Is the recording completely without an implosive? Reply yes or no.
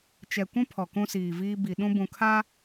no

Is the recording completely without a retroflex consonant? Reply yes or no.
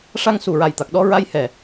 no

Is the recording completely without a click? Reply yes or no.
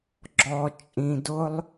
no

